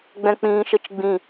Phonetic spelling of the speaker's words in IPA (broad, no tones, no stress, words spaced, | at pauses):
ɡ͡bɛ̃k͡pĩːʃət͡ʃɡ͡bĩ